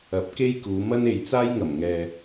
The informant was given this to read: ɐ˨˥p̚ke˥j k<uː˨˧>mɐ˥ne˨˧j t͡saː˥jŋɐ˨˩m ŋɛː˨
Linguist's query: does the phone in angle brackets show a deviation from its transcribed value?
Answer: no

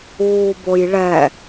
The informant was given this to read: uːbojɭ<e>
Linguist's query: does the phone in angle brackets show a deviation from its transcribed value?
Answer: yes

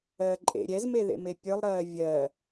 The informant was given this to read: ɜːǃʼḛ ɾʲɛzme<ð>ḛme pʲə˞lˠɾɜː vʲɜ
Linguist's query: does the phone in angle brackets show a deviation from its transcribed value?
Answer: no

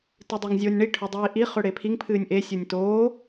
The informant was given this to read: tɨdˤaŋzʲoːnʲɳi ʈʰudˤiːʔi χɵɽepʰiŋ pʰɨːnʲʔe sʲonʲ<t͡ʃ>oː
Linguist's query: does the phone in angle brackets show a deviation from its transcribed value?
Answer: yes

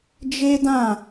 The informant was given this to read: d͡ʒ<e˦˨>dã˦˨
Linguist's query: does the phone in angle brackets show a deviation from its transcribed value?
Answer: yes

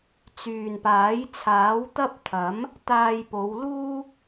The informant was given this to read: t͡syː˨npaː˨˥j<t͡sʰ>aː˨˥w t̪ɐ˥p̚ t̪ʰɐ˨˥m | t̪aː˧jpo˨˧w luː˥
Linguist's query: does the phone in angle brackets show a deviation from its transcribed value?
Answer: no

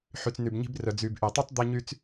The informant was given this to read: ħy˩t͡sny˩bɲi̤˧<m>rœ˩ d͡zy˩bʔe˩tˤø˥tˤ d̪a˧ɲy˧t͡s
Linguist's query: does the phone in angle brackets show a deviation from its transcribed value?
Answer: yes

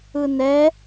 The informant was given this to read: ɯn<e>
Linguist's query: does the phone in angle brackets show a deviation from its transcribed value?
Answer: yes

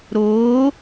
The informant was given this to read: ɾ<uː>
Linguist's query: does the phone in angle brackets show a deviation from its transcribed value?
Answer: yes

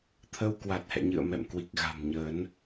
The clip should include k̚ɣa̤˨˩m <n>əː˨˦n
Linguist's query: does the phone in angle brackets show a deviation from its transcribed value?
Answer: yes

